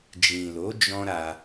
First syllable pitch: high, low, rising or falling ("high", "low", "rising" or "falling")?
low